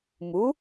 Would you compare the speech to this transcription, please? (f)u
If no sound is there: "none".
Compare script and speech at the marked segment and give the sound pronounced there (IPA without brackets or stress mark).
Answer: m